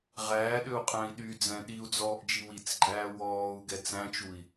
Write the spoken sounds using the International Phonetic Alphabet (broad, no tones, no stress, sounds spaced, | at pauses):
ʁ æː ɗ ø u̯ qʼ æ̃ i̯ ɗ y d͡z ɛ̃ ɗ i u̯ d͡z ɔː ʔ d͡ʒ i w i t͡s ɡ͡ǃ æː w ɔː u̯ ɡ ɛ t͡s æ̃ t͡ʃ u i̯